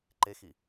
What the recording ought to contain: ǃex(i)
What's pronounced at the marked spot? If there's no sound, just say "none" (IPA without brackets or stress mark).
i